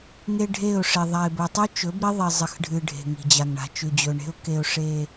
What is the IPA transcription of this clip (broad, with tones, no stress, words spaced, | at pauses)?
ŋe˦ɖʱe˦˨ʊ̯ʂe˨ ðˤa˨ɪ̯bɵ˨tˤʉ˦ t͡ʃɵ˨˦bɾi˦ ðˤi˨zˤɨ˨xɖʱɨ˨ ɖʱe̤˨ŋi̤˨d͡ʑa˨ŋ ɳa̤˨t͡ʃʉ˨ d͡ʑɵ˨ɳe̤˦ʊ̯ ke˦ʊ̯ ʂe˦